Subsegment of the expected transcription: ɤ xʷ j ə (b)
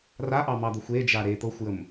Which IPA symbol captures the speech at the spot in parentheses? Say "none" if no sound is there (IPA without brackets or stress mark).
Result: m